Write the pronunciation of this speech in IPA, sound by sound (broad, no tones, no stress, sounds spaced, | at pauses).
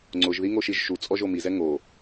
ŋ͡ǀ ʊ ʒ ð i ŋ o ʃ i ʒ ʃ u t͡sʼ ɔ ʒ o m i z ɛ ŋ o